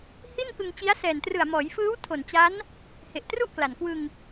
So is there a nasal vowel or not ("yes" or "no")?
no